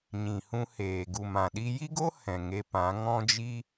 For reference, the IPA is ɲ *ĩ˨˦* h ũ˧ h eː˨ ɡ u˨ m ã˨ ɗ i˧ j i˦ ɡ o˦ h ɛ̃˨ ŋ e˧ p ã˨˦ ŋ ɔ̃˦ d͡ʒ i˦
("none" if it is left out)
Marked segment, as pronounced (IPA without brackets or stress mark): ĩ˨